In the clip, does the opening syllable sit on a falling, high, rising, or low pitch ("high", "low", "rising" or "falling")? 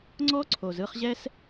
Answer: high